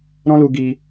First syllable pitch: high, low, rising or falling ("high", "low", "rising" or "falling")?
high